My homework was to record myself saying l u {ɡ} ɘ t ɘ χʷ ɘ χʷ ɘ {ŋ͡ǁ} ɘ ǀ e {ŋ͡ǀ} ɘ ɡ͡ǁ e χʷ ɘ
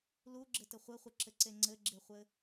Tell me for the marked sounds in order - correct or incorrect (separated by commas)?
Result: incorrect, incorrect, correct